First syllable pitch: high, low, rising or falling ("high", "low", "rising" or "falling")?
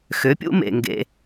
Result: rising